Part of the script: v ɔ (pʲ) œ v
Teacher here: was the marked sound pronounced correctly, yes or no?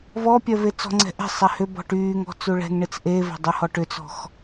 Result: yes